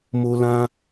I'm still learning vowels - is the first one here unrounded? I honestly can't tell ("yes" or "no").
no